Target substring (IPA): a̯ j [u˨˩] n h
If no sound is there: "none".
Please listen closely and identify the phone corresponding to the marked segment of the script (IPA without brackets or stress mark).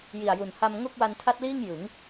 u˨˩